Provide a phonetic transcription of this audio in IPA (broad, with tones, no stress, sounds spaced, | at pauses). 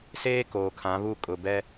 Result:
s eː˦ k oː˨ kʰ ã˨˦ β u˦˨ kʼ ʊ˨ b ɛ˦